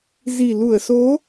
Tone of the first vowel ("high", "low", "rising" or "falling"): low